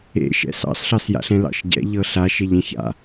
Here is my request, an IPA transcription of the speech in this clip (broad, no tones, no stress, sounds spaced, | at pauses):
ḛ ʃ ɛ̰ s ɑ̰ s ɬ ɑ s j a̰ ɬ ɛ̃ l ɑ̰ ʃ ɟ ɛ̰ ʎ ɤ ɬ a ʃ e ʎ ẽ ç a̰